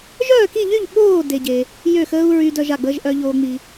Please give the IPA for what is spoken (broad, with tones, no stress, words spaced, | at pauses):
ʒœː˥˧ki˥˧ʎy˥˧ʎ ɓoː˥˧ de˥ɟe˥ | jø˥˧xəː˥u̯ ɹy˥ dœ˥ʒa˥˧ɡ͡bəː˥ʒ ʔœ˥ʎoː˥ŋ͡mi˥